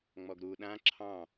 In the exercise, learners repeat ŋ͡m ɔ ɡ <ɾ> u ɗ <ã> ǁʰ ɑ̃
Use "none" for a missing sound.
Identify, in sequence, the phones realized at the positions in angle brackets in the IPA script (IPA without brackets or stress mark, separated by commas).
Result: ɾ, ã